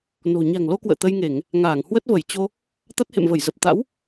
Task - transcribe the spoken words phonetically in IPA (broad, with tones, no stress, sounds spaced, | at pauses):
n o̤˨˩ ɲ a̤˨˩ ŋ l o˧ k w ə̰ː˧˨ t̪ ə˧ j ŋ e˧˩˨ ŋ | ŋ aː˧˩ ŋ h w ə˦˥ t̚ v ə˧˩ j t͡ɕ o˧ | t̪ a˦˥ t̚ h ḛ˧˨ m v ə˧˩ j z ə˨˩ p̚ t̪ a̰˧˥ w